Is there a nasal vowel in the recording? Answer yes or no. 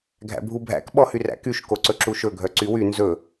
no